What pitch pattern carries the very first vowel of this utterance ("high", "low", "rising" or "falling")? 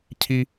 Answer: high